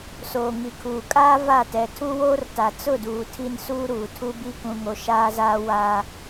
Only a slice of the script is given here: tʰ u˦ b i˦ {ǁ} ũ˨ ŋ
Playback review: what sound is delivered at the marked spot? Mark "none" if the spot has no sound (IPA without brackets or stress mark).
k